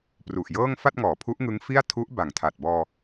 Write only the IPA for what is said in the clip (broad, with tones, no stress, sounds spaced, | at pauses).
p r u˨˩ ʔ j ɤː˥˩ ŋ f a˥˩ t̚ ŋ ɔː˩˦ pʰ u˦˥ ʔ ŋ ɯ˦˥ ŋ f i˥˩ a̯ tʰ u˦˥ ʔ b a˨˩ ŋ tʰ a˨˩ t̚ b ɔː˧